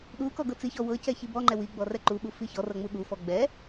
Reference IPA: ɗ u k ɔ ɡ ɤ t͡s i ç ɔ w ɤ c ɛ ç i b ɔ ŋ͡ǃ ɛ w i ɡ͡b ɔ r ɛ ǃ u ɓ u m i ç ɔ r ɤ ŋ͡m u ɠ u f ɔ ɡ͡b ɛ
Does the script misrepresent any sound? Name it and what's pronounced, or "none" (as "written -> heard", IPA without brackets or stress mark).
m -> f